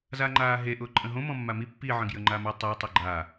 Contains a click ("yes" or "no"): yes